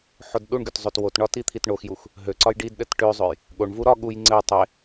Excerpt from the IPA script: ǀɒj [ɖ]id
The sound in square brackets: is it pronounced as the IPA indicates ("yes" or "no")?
yes